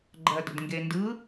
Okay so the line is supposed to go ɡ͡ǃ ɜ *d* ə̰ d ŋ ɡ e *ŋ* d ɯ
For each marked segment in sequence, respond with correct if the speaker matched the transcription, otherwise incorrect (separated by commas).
correct, incorrect